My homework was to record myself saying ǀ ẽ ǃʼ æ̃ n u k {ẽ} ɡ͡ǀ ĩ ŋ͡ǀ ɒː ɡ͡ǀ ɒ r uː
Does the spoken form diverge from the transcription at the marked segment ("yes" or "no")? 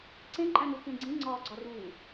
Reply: no